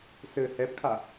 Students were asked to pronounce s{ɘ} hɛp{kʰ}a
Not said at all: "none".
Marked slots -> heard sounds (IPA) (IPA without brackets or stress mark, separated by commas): ɘ, kʰ